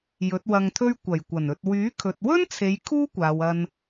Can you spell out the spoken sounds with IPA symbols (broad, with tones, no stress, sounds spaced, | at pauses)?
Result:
j ɵ˨˥ t̚ w ɐ˧ ŋ t̪ʰ ɵ˥ ɥ kʷ ɐ˨˩ j kʷ ɐ˨˩ n ɵ˨ t̚ w yː˨˥ kʰ ɵ˨ t̚ w ɵ˥ n t͡sʰ e˨˧ j kʰ uː˥ kʷ aː˨ w ɐ˧ n